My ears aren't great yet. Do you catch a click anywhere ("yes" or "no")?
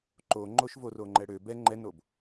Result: yes